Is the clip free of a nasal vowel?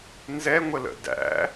yes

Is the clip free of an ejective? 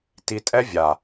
no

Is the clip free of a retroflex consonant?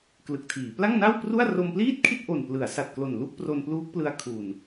yes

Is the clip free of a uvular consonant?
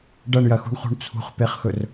no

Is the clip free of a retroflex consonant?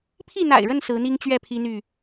no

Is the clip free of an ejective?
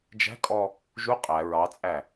no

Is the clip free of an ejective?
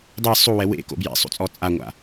no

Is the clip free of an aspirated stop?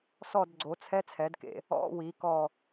no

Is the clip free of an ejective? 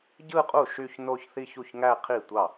no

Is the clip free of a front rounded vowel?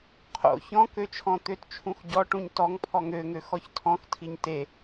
no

